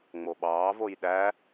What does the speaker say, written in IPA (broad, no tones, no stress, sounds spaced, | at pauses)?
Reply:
ŋ͡m o ɓ ɑː v o j ɗ æ